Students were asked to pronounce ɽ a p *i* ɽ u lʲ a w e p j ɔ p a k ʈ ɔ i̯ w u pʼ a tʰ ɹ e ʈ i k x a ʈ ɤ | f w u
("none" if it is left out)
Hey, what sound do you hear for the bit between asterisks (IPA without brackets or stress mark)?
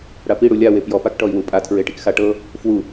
i